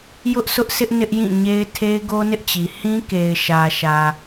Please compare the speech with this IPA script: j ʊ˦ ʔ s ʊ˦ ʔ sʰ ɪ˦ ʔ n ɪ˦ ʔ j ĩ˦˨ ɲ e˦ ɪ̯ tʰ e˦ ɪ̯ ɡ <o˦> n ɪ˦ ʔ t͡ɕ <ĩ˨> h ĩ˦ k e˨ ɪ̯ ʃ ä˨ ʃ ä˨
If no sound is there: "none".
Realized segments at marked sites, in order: o˦, i˨

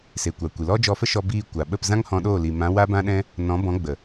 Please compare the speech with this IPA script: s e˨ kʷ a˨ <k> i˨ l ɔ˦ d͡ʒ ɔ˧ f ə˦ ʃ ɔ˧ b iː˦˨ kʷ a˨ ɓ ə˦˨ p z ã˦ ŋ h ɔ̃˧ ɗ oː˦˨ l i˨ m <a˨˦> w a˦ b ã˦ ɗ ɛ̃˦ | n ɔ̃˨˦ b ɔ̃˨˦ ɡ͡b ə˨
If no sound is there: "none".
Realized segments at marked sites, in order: kʷ, ã˨˦

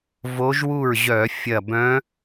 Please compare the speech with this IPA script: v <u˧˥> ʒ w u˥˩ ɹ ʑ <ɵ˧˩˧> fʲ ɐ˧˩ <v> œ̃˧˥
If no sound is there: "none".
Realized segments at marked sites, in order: o˧˥, œ˧˩˧, b

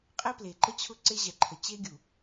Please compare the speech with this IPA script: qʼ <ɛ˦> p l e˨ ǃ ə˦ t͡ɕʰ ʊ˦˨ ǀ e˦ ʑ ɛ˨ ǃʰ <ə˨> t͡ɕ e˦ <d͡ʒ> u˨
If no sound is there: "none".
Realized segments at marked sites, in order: ɛ˦, ə˨, ɡʲ

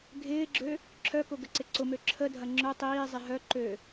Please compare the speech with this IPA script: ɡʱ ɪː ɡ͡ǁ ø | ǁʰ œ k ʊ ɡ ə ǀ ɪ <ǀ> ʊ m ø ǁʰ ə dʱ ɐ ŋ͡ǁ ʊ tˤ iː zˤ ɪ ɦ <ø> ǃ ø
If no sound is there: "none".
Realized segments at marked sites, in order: ǀ, œ

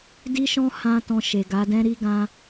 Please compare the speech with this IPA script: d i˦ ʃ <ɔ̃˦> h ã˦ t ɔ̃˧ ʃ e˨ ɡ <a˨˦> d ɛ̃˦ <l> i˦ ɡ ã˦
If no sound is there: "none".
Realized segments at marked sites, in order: ɔ̃˦, a˨˦, ɾ

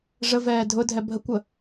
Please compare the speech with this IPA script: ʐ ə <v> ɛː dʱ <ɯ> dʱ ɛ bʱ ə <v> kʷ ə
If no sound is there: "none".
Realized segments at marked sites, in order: v, ʊ, none

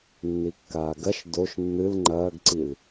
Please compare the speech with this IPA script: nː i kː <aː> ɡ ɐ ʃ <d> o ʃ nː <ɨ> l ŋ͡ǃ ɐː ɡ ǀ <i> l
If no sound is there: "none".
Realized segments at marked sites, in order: aː, d, ɨ, i

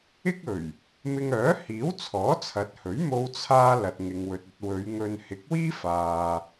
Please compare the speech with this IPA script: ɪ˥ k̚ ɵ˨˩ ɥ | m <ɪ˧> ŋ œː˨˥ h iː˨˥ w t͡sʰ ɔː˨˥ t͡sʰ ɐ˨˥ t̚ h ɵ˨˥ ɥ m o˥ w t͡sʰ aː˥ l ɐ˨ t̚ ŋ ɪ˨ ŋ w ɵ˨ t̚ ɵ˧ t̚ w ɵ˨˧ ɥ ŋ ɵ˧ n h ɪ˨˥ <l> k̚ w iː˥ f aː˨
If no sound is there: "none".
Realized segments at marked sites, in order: ɪ˧, none

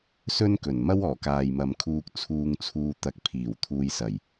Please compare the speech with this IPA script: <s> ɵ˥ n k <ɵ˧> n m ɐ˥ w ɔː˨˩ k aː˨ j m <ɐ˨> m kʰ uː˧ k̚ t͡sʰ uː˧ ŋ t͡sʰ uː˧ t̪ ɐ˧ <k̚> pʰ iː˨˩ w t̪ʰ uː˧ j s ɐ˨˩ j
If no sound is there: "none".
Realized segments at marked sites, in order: s, ɵ˨˩, ɐ˨, k̚

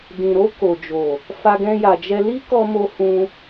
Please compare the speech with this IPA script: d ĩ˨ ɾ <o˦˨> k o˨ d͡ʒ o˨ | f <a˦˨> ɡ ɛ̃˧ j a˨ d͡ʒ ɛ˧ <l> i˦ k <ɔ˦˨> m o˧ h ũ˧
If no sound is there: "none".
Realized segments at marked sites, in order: o˧, a˧, l, ɔ˧

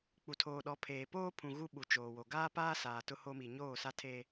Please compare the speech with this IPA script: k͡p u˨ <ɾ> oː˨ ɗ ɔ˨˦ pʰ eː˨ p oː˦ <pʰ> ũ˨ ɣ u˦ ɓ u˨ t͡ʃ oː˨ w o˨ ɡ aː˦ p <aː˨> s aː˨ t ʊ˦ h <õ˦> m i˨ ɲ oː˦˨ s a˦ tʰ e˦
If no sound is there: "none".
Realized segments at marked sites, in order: tʰ, pʰ, aː˦, o˦

